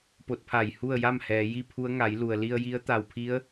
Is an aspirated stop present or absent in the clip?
present